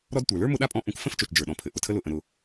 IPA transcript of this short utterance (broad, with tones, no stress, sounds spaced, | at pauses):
ɾ ɔ˦ d tʷ ə˞˩ l ə˞˥ m ʊ˦ ɗ a˥ pʼ ɔ̃˦ ʔ ũ˨ k f ə̃˦ f t͡ʃ o˨ t͡ʃ d͡ʒ ə˞˩ ɗ ɔ̃˩ pʰ ɘ˩ ʔ ʊ˩ tʰ ə˦ l ʊ˨ ʔ ə̃˨ ɾ ʊ˨